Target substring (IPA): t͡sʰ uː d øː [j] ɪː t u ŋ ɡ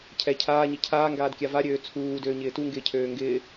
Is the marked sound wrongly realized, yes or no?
yes